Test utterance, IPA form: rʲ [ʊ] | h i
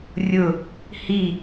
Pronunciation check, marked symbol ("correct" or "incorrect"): correct